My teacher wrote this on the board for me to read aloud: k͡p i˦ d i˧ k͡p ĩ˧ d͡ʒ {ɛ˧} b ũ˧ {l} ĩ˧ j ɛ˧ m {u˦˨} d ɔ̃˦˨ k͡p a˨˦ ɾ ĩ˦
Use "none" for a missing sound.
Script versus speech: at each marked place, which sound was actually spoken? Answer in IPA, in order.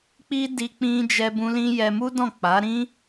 ɛ˧, l, u˦

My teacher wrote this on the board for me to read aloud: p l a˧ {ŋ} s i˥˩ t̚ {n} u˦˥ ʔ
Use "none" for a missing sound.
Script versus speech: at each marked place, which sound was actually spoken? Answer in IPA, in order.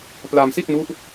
m, n

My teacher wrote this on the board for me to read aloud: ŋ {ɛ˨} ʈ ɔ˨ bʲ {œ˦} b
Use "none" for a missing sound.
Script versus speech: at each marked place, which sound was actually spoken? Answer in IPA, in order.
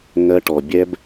ɜ˨, ɛ˦

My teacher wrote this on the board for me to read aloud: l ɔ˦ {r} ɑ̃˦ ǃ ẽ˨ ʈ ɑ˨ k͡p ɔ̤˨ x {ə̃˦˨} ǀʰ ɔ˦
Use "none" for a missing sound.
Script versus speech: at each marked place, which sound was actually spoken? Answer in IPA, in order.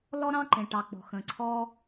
ɾ, ə̃˨

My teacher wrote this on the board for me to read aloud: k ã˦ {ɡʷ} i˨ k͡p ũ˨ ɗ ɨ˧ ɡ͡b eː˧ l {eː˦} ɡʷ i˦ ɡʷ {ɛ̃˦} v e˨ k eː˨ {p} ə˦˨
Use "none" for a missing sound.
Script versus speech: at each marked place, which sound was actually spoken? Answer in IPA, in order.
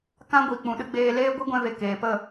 ɡʷ, eː˦, ɛ̃˧, p

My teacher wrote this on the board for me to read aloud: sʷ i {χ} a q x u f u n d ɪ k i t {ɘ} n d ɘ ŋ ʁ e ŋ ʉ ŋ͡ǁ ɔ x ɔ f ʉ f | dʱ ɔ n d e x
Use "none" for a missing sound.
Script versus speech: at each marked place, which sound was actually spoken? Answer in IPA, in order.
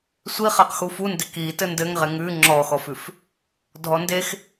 χ, ɘ

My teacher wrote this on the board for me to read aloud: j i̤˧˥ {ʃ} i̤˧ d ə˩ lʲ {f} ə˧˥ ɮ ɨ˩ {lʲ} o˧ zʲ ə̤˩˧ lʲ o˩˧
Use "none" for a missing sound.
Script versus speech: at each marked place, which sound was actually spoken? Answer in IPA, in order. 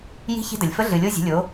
ç, f, lʲ

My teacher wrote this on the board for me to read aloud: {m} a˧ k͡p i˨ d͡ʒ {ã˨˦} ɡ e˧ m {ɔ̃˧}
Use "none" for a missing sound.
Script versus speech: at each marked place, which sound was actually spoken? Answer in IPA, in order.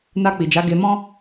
n, a˨˦, ɔ̃˦

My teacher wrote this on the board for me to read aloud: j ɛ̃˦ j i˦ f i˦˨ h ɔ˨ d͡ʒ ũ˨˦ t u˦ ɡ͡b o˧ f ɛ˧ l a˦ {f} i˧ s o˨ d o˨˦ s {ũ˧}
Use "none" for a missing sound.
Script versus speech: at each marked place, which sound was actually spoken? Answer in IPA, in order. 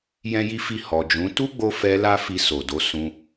f, ũ˧

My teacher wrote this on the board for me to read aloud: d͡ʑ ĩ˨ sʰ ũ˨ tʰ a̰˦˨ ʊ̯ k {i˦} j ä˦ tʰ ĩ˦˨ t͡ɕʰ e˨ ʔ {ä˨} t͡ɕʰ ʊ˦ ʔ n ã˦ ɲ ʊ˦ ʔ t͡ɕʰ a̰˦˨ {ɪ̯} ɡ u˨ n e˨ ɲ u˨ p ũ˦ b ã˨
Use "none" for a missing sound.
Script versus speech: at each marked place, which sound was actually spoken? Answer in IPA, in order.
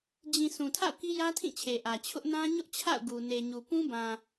i˦, ä˨, ʊ̯

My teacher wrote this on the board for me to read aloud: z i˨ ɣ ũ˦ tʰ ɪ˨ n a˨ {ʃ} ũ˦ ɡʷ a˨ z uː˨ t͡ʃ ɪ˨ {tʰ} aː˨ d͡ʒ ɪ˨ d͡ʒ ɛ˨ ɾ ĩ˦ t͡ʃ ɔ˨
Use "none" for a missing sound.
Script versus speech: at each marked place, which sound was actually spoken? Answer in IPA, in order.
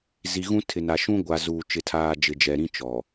ʃ, tʰ

